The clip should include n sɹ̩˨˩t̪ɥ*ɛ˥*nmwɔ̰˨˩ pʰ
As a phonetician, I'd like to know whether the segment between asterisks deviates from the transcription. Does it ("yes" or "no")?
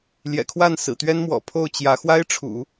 no